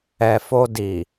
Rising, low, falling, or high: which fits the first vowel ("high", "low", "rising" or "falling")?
low